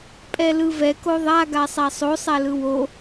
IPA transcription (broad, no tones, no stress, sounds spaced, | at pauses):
pʼ ɛ l ɯ v ɛ k o ðˤ a ɡ a sˤ a sˤ o sˤ a l ɯ w o